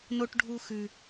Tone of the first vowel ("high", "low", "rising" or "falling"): high